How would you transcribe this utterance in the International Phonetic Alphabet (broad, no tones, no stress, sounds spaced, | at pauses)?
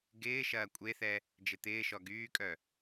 ɡ ɪː ʃ ɐː kʷʼ e θ ɛ | d͡ʒ ɪ t̪ ɪː ʃ ɔ ɡ yː kʼ œ